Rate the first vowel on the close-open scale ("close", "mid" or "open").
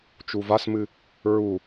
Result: close